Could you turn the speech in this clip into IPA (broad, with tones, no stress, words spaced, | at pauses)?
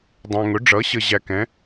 dˤæ̃˨ŋʊ˩˥ ɖ͡ʐʌ˩˥ɕə˨ ʑæ˨kɛ̃˩˥